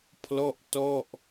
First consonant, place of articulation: labial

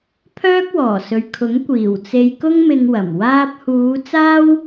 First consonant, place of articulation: labial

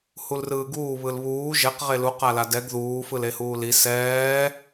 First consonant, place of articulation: glottal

